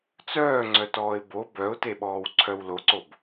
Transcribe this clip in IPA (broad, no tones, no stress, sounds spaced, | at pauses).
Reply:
t͡s œː ŋ͡ǀ œ t ɔː ɪ̯ b o b œ ʊ̯ t e ɓ ɔː w ǀʰ œ w l o ǀ o b